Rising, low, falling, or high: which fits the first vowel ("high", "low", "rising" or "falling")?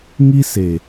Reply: high